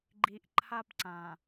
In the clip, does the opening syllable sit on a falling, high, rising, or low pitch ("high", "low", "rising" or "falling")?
low